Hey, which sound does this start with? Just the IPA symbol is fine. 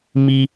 m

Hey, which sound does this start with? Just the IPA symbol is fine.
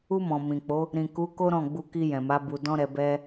u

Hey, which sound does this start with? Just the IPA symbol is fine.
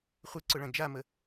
χʷ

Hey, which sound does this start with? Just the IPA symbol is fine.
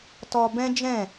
t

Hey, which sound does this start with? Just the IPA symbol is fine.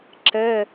ǁ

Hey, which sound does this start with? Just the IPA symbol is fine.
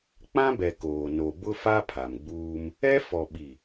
k͡p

